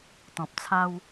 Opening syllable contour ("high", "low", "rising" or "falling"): low